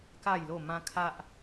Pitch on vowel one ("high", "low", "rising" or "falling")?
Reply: falling